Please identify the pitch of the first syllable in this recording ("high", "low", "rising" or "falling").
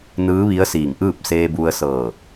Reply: rising